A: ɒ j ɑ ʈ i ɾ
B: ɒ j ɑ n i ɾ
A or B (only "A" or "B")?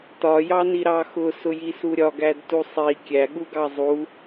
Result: B